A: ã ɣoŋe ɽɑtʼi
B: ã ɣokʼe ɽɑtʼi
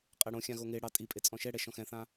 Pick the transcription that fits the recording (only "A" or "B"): A